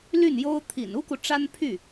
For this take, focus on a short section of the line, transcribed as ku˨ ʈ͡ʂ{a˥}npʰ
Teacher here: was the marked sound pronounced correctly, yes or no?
yes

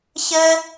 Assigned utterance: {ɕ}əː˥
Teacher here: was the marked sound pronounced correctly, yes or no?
yes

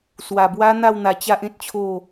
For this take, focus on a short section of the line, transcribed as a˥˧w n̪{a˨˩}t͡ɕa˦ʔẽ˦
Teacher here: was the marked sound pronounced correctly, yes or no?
no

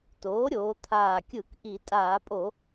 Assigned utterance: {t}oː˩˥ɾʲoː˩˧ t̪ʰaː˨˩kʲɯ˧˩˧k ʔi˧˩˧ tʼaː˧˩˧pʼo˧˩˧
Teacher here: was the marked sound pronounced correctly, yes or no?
yes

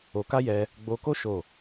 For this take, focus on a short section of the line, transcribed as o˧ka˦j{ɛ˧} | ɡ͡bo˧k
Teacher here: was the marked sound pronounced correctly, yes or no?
yes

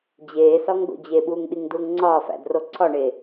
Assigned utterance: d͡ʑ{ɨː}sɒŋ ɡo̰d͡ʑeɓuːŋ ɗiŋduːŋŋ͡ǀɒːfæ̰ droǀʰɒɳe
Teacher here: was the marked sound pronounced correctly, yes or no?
no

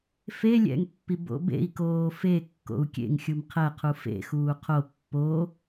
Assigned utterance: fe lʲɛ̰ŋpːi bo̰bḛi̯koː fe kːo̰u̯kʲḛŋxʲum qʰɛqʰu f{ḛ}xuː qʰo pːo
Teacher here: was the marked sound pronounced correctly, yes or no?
yes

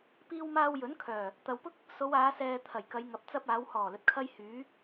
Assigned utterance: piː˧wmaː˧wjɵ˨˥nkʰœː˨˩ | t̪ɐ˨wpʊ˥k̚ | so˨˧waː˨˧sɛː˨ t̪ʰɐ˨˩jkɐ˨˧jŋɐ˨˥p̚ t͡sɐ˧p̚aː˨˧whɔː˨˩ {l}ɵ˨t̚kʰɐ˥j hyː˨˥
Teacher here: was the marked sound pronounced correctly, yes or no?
yes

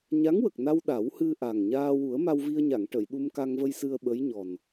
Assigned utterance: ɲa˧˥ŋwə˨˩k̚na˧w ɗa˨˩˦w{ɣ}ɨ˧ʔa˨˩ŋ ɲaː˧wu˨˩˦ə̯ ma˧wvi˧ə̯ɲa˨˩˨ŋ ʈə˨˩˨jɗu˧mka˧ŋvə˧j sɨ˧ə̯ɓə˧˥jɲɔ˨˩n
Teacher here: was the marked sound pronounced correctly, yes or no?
no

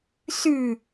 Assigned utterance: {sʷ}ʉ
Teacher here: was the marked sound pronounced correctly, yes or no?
no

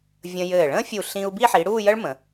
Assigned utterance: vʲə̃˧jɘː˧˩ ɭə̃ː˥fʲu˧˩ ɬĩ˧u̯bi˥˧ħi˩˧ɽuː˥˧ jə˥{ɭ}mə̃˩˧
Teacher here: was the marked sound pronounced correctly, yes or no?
yes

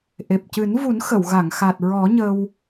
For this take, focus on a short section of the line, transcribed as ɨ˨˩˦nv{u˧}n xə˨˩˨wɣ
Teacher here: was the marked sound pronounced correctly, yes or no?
no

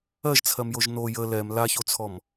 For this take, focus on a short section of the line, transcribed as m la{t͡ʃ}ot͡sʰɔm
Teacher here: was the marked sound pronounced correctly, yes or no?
no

